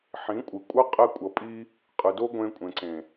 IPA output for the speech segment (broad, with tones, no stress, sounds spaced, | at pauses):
ħ ĩ˨˦ kʷʼ ɯ˨ kʷʼ ʌ˦ qʼ ɛ˧ kʷʼ ʌ˨ pʼ i˧ | qʼ ɯ˨ d o˦ ɡʷ ẽ˧ kʷʼ ẽ˨ ǀ ẽ˨